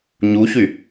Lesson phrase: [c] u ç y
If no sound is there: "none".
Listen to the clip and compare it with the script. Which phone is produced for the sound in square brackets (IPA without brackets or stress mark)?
ɲ